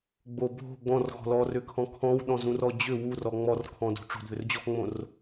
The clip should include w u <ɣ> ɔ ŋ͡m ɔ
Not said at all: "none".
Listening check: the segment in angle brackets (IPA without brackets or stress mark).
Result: r